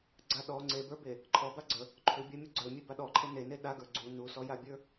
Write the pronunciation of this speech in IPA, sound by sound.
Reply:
ɡ͡ǀ a ɗ ɔ ŋ͡ǀ e b ə˞ b e | ǃʰ ɔ b a ɡ͡ǀ ə | ǃʰ u bʲ a mʲ u ɡ͡ǀ ə˞ mʲ e b a ɗ ɔ ǃʰ e n e n e ɗ a ɡ ə˞ ɡ͡ǀ u n u s ɔ j a bʲ ə˞

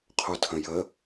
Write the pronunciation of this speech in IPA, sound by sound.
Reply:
qʰ o tʰ ə̃ j ə

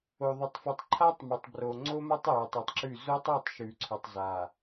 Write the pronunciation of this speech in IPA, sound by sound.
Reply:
o˨ ðˤ ɵ˨ tˤ f ɨ˨ tˤ ǃʰ a˦ tˤ m ɵ˨ tˤ b r o˨ ŋ͡ǀ o˦ m a˦ tˤ j ʉ˨ tˤ ʉ˨ tˤ ǁ ʉ˦˨ z o˦ tˤ o˦˨ tˤ ʃ ʉ˨ ǀʰ ɵ˨ tˤ z a˨

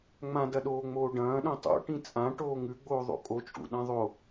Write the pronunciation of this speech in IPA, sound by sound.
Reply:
ŋ͡m ã d ɐ ɗ oː ŋ͡m oː ɖ ɐ̃ː ɗ õ tˤ o̰ ʈ ĩ t͡sʼ ã ʈ oː ŋ ʉ ɡ͡b oː ðˤ o̰ kʼ o t͡ʃʼ ṵ ɗ ã ðˤ o

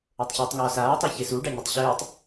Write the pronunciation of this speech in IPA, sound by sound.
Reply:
ə˞ tˤ ç ɨː tˤ ŋ ɔː s aː tˤ o ç e s u ɖ a ɲ ɨ tˤ ɕ ɨː tˤ

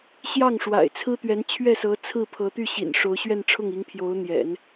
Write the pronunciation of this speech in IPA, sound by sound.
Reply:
ɕ j ɑ˥˩ ŋ ʂ w a̰˨˩ ɪ̯ t͡sʰ ɹ̩˥ t̪ ɥ ɛ˧˥ n t͡ɕʰ ɥ ɛ˥˩ s ɤ˧˥ t͡sʰ ɹ̩˥˩ pʰ ɤ˧˥ t̪ y˥˩ ɕ ḭ˨˩ n ʂ o˧˥ ʊ̯ ɕ ɥ ɛ˥˧ n ʈ͡ʂʰ ʊ˥˩ ŋ i˧˥ ŋ pʰ j o˧˥ ʊ̯ n̪ j ɛ̰˨˩˦ n

